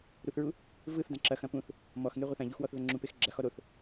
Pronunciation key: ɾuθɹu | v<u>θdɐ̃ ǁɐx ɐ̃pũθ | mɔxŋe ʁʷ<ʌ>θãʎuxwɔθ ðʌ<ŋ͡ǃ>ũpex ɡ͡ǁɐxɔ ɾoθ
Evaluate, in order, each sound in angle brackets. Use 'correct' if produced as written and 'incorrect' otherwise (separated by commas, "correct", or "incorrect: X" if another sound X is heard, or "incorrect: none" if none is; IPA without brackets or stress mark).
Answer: incorrect: ɯ, correct, incorrect: ŋ͡ǁ